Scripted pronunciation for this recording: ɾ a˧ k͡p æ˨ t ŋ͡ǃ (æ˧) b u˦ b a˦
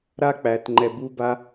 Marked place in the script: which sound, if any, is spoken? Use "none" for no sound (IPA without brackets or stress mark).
ɛ˧